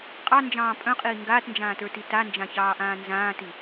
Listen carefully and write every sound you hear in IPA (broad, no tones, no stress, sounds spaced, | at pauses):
qʼ ɑ n d͡ʒ ɑ̃ː pʼ œ̃ qʼ iː ŋ ɡ aː t n d͡ʒ ãː t ə˞ t i t a n d͡ʒ ã ç ɑː ʔ ãː n z ãː t i